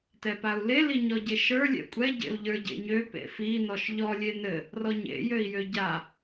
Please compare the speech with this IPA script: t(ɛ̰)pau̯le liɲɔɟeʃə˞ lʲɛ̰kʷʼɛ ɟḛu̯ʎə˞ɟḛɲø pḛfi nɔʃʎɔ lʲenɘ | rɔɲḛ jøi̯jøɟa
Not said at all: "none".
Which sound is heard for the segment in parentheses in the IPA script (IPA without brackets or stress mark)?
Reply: ɛ